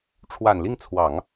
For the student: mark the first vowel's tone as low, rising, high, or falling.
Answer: low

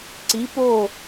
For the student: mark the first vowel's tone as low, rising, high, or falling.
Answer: rising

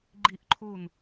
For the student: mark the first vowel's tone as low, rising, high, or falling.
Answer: falling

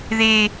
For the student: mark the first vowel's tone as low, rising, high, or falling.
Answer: high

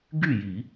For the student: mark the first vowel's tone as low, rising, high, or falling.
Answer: falling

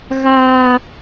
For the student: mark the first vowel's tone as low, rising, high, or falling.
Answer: high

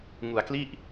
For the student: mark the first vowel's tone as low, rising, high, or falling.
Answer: low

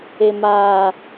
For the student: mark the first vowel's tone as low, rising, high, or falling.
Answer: high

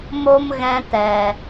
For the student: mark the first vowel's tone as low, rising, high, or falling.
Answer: high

